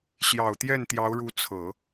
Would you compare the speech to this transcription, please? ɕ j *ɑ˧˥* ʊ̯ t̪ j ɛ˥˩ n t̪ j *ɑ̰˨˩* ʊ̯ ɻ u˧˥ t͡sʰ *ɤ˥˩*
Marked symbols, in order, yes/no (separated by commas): no, no, no